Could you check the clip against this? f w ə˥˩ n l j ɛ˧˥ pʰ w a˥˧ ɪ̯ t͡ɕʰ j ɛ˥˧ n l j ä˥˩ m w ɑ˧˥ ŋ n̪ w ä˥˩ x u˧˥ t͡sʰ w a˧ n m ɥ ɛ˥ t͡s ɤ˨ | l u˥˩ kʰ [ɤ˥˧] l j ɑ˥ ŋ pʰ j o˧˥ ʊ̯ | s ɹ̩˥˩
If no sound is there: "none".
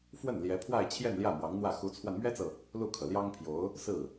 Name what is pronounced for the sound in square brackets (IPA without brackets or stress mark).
ɤ˩